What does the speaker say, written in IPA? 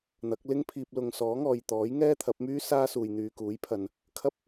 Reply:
n̪ɐ˨˥k̚ lɪ˥ŋpʰiː˧p̚ lʊ˨ŋ sɔː˨˥ŋɔː˨jt̪ɔː˨˥j ŋɛː˥t̪ʰɐ˨˥p̚myː˥ saː˥suː˨j n̪yː˨kuː˨˥jpʰɐ˨n | kʰɐ˥p̚

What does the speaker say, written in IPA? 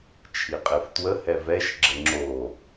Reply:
t͡ʃʰiqʼeftwə hɛvɛʃ ɡ͡ǁəŋ͡ǁo

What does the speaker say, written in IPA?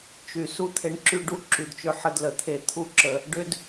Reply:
t͡ʃy˨ su˦t̪ʰe˧ɳǁy˦ ɖu˧ǁy˨dt͡ʃʏ˧ ħə˦dlə˨t̪ʰe˦ t̪ʰu˦ǁə˧ | ɖʏ˦d

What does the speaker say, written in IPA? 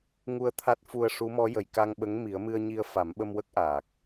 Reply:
ŋu˧ə̯ t̪ʰa˦˥t̚fu˧ə̯ ʂu˧˥mɔ˧˥jə˨˩j ka˧ŋɓə˧˥ŋ mi˨˩˦ə̯mɨ˧ə̯ɲi˧ə̯ fa˨˩˦mɓə˧mwə˦˥k̚ ʔaː˨˩k̚

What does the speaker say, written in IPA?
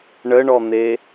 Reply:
ɳəɳɔn̪e

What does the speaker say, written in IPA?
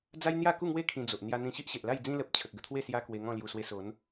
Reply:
d͡za˦jn̪ja˥˧ku˥˧ŋwe˦ kʰĩ˧d͡zo˨ʔ n̪ja˧n̪ĩ˧ ɕi˦ʔɕe˨ʔla˥˧j d͡zĩ˧lə˨p̚ t͡ɕʰə˨k̚ɡə˥˧t̪ʰwe˥˧ sja˦kwe˧ŋɔ̃˥˧ lju˨˩ swe˧so˨˦n

